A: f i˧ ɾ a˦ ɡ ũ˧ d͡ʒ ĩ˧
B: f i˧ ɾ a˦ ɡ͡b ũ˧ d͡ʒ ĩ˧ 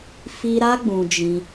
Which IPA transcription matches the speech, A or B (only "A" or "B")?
B